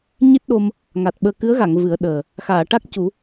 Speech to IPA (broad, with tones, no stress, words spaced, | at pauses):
ɲi˦˥t̚ɗo˧m | ŋa˨˩t̚ɓəː˧ kɨ˧˥ə̯ɣa˨˩˨ŋ vɨ˨˩˦ə̯ɗəː˨˩ | xaː˨˩˨ʈa˦˥k̚cu˨˩˦